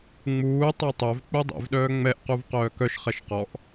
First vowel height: high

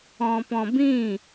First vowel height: mid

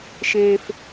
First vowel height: mid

